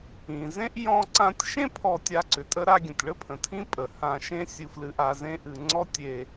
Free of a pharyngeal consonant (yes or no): yes